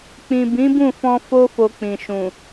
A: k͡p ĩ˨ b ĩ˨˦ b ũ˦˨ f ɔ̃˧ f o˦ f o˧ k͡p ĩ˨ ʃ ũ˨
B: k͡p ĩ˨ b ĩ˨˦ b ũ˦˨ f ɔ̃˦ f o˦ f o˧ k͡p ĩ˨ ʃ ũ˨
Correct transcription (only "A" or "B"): A